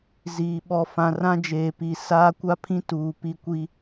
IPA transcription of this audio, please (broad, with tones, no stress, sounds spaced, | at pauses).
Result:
z iː˨ ɓ ɔ˨ f ã˨ r ã˦ d͡ʒ eː˨ p i˨ s aː˦ kʷ a˦ pʰ ĩ˦ t uː˨ p i˦ kʷ i˦